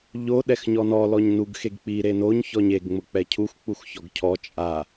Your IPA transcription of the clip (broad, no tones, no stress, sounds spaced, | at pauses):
ʎ o ɗ ɛ x ɲ ɔ n ɔ l ɔ ɲ n u ɡ x e ɡ k͡p i ɾ e n o ɲ ç ɔ ɲ e ɡ ŋ͡m ʊ k͡p ɛ cʰ u x k͡p u x ç ɔ ɡ cʰ ɔ t͡ʃʼ a